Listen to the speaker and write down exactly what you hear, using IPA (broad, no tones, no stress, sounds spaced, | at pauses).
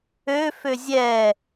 ø f ø zʲ ɛ